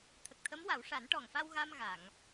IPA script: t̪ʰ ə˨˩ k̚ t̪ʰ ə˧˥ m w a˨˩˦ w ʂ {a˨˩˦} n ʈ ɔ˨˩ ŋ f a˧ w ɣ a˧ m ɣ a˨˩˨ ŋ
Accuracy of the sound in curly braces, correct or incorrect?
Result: correct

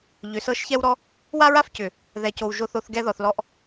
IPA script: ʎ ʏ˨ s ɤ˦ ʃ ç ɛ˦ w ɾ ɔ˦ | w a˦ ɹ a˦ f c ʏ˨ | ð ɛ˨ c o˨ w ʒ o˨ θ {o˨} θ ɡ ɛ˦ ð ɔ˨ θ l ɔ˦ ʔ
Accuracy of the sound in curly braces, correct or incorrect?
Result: incorrect: o˨˦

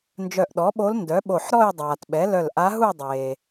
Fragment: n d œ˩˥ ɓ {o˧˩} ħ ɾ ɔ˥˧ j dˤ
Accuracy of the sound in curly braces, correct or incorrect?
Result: correct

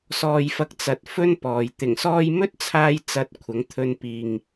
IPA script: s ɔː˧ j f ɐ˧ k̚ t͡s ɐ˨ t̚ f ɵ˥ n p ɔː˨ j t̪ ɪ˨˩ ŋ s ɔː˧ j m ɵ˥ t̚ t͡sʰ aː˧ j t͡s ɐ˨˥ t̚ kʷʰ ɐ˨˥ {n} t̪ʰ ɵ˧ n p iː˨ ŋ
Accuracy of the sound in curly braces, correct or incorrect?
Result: incorrect: ŋ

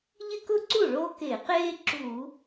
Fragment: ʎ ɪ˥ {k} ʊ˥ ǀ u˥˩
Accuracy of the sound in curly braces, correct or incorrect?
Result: correct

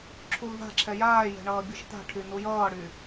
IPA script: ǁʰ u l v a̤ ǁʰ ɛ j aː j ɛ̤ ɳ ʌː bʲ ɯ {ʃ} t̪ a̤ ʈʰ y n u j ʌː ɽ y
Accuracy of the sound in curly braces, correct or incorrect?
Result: correct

